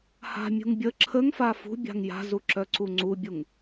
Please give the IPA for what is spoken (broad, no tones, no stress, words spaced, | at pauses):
ha̤mʲṳŋ bʲə ǁʰəŋfa fṳbʲa̤ŋ ja̤zu ǁœǀuŋ͡ǀubʲuŋ